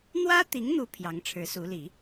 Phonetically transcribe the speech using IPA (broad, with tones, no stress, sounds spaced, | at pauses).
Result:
n̪ w ä˥ t̪ i˧˥ ŋ n̪ u˧˥ pʰ j ɑ˧˥ ŋ ʈ͡ʂʰ ɻ̩˧˥ s u˧˥ l i˨˩˦